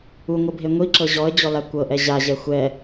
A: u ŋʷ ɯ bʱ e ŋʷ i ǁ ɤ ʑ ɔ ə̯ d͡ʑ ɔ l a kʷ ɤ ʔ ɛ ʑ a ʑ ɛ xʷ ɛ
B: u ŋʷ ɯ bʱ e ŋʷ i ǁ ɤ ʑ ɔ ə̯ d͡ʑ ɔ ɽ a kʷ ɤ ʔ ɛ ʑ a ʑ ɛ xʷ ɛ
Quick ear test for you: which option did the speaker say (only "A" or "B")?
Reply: A